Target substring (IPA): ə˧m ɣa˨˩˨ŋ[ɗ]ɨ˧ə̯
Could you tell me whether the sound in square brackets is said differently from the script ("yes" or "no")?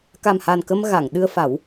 no